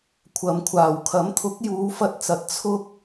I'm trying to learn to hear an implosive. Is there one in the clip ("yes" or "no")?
no